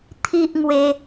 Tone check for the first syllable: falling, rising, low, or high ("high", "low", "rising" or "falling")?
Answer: high